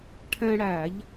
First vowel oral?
no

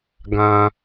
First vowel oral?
no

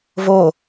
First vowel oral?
yes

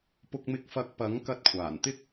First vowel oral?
yes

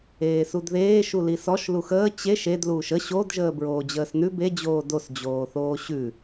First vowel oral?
yes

